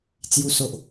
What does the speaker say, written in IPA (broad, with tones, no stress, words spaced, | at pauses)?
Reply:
t͡sju˨˩so˨ʔ